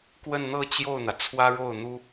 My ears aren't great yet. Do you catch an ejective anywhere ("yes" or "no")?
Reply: no